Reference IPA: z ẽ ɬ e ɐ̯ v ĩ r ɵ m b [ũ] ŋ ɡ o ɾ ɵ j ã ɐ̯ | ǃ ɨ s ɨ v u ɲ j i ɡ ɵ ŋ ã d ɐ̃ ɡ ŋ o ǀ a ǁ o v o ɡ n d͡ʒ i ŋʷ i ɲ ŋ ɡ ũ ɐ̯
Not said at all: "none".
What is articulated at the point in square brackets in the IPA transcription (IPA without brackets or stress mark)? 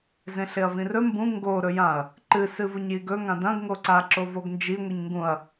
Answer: ũ